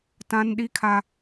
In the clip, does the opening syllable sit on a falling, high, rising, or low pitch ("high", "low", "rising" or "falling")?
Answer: high